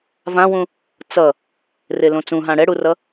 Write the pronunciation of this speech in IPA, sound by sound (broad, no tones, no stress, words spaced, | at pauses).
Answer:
vãwũ | t͡sʌ | relõt͡sũɦã ɽɛɽurʌ